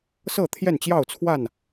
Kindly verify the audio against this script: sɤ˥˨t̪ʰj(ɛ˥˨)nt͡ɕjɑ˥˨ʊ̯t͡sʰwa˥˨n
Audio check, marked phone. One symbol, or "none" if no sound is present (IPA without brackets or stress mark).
ɛ˥˨